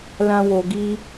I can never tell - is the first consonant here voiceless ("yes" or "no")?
no